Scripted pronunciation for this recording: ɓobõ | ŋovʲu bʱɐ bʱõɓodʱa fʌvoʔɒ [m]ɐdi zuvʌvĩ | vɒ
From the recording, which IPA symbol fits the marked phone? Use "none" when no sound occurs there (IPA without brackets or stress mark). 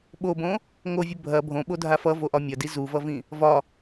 mʲ